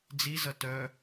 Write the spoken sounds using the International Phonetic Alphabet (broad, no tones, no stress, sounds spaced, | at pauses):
d͡z i z ʌ t œ